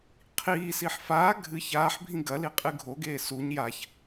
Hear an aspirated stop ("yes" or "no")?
yes